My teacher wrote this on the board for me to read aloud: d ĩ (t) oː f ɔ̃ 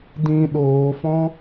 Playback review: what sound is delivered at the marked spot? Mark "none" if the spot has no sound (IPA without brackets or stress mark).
ɗ